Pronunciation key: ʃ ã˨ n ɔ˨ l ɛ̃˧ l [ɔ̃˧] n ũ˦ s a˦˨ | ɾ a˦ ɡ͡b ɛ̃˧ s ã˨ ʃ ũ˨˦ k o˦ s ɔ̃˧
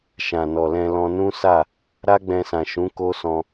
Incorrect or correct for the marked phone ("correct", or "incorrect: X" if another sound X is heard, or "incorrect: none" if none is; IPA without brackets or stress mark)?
correct